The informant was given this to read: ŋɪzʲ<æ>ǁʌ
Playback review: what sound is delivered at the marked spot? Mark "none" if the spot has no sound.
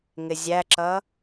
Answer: æ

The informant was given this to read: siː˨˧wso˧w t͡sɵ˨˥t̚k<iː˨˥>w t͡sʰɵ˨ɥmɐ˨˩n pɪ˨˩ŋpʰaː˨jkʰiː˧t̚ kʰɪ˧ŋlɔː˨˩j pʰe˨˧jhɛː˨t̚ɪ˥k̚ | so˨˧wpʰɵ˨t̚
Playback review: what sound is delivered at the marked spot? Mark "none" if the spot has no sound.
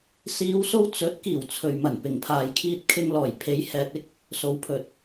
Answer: iː˨˩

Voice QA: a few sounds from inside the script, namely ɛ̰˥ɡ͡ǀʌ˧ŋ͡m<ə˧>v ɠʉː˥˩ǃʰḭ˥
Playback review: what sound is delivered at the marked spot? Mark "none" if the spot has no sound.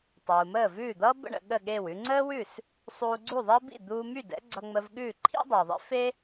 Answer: ə˧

